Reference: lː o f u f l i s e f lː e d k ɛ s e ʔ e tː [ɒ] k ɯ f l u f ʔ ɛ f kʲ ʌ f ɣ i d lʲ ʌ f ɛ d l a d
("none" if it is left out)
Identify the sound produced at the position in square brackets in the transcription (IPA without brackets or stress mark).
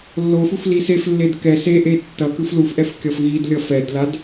ʌ